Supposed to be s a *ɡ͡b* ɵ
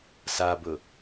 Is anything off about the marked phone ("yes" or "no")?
yes